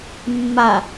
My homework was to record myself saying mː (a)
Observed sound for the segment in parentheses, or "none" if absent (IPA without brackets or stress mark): a